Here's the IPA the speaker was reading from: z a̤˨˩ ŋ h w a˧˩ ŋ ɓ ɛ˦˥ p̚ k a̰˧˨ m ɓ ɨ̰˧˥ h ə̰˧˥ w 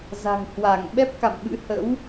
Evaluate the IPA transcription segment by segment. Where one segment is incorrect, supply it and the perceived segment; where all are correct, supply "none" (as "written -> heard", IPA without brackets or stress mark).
none